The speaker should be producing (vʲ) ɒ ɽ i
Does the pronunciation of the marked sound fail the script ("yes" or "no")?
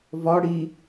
yes